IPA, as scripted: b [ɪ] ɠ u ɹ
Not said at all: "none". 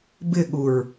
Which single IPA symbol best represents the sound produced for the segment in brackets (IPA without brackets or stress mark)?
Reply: ɪ